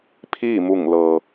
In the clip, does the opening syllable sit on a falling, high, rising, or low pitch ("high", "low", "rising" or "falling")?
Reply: falling